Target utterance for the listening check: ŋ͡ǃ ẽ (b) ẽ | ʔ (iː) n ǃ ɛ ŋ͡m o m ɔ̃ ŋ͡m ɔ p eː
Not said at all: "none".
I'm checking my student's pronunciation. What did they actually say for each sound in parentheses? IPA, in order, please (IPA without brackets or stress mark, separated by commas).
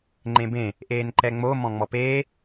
b, eː